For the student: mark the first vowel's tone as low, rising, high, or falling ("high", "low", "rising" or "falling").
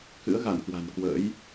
rising